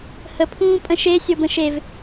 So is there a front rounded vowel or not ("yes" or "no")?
no